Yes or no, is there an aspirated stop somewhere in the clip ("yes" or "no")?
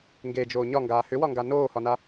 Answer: no